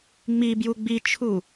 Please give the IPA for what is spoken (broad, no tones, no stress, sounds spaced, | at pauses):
ŋ͡m i b j u ɡ͡b i t͡ʃʰ u